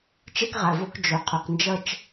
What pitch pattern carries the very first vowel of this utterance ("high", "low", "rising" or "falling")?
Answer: high